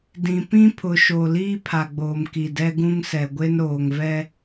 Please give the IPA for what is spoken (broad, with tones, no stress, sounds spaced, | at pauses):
d ĩ˨ p ĩ˦ pʰ ʊ˨ ʃ o˨ l iː˦ pʰ a˨ ɡ͡b oː˨ m k i˨ d ɛ˦ ɡ ũ˦ ŋ s ɛ˨ ɡʷ e˦ n ɾ oː˨ ŋ v ɛ˦